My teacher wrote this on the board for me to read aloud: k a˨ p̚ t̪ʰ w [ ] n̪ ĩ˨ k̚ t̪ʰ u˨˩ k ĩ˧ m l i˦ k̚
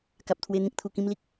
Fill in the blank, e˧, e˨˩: e˧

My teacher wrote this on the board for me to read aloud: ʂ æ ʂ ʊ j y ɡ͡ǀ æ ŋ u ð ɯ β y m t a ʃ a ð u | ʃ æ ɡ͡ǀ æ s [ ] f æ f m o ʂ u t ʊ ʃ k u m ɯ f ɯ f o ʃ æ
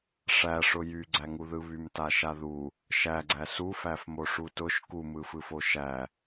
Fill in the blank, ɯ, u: u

